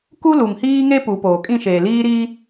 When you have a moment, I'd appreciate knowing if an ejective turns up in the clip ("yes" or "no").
yes